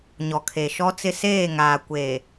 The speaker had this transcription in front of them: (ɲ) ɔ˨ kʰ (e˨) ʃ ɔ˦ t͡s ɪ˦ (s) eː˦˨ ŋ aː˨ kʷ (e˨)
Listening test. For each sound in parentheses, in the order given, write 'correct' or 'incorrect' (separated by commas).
correct, correct, correct, incorrect